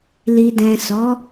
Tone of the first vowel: low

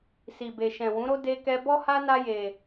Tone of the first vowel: low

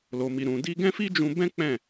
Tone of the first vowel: low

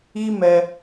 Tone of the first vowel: high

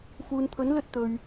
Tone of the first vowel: low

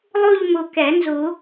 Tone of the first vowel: falling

